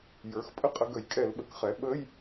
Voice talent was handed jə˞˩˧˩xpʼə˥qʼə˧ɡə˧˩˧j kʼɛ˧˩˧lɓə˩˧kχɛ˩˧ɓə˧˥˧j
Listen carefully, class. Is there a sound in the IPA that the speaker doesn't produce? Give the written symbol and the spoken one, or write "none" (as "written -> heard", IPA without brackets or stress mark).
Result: none